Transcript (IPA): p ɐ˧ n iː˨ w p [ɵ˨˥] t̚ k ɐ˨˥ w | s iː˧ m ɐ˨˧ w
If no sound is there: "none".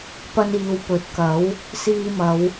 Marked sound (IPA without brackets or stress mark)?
ɵ˨˥